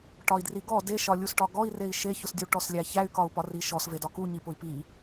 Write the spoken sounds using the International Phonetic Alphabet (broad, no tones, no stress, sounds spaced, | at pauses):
ʈ ɒ i̯ d r i ɡ ɔ d e ʃ ɒ lʲ u s ʈ ɒ ɡ ɔ i̯ r e i̯ ʃ e ç ʊ s dʲ u ʈ ɔ s lʲ æ ç æ y̯ k ɒ u̯ p ɒ r i ʃ ɔ s v e d ɒ k u ɲ i p ʊ i̯ p i